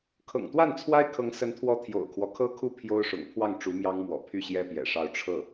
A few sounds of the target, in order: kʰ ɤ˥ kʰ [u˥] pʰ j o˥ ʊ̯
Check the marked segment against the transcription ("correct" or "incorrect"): correct